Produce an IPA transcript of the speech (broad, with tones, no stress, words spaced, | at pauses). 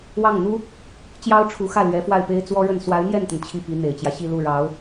wɑ˥˩ŋn̪u˥ | t͡ɕjɑ˥ʊ̯ ʈ͡ʂʰu˧˥xä˥˩ lɥɛ˧˥fwa˥˩ɪ̯pe˥ɪ̯ t͡swɔ˥ɻə˥˩n swa˧˥ɪ̯n̪jɛ˥˩nt̪ə˩n t͡ɕʰi˥˩pi˧˥n̪e˨˩ɪ̯t͡ɕjä˦ ɕi˥˧lu˥˩ ɻɑ˧˥ʊ̯